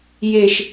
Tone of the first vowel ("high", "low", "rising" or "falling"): high